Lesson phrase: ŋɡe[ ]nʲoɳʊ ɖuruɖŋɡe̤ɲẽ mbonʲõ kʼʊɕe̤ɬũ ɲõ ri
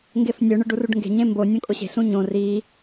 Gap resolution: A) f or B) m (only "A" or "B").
A